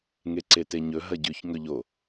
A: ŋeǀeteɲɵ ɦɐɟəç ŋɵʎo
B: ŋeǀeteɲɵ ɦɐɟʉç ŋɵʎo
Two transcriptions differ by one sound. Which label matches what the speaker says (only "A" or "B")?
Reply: B